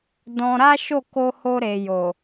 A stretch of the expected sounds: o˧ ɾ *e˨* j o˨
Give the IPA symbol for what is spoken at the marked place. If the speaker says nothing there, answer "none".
e˨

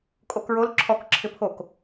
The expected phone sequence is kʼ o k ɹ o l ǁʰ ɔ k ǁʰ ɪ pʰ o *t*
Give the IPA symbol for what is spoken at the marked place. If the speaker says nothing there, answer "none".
k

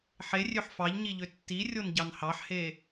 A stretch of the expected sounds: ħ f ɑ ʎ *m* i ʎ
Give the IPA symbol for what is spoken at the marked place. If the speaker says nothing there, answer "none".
ɲ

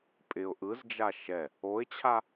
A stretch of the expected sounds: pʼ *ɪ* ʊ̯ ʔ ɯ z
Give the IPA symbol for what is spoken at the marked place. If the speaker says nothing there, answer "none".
ɪ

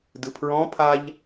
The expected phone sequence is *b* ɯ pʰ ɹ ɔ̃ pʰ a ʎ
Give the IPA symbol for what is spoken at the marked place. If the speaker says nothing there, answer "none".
d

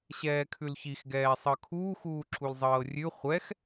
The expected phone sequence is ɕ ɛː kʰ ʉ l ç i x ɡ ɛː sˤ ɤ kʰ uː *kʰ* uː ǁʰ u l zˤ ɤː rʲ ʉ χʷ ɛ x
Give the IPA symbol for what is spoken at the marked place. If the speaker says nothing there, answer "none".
x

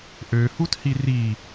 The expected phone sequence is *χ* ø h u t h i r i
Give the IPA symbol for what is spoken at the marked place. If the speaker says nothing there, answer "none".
ʔ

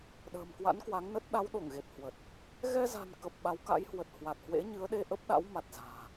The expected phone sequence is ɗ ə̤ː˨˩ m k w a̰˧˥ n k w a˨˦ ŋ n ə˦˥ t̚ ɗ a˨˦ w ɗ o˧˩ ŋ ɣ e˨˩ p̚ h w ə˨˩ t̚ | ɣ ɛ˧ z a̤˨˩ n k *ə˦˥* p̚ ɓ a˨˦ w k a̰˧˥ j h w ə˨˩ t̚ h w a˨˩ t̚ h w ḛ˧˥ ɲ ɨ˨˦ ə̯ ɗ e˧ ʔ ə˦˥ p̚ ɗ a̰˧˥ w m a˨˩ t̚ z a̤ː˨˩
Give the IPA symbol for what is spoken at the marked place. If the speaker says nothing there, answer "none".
ə˨˩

